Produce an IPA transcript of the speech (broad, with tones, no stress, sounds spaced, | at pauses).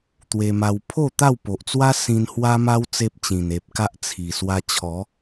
t̪ w e˧ m a˧ w pʰ o˥˧ t̪ a˥˧ w p o˨ ʔ t͡s w a˦ s ĩ˧ n h w a˦ m a˦ w t͡s e˦ p̚ t͡ɕ ĩ˨˩ n e˨ p̚ k a˦ ʔ t͡sʰ i˨˩ s w a˧ t͡ɕʰ ɔ˨˦